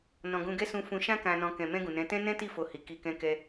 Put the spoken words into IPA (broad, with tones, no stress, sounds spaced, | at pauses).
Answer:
n ɔ̃˨ ɡ ũ˧ ɡ ɛ˦ s ũ˧ f ũ˧ ʃ ã˦ k ã˧ n ɔ̃˧ k ɛ̃˨ m ɛ̃˧ ɡ ũ˨ n ɛ̃˨˦ t ɛ̃˦ n ɛ̃˦ t i˦˨ f o˧ h i˨ k i˨ k ɛ̃˧ k ɛ˧